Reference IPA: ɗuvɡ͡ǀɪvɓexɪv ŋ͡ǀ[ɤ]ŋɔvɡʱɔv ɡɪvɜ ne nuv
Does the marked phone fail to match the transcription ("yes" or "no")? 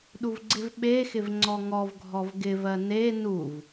yes